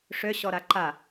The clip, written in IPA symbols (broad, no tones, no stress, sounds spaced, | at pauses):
ʂ ø ɕ ɔ ɾ a ǃ a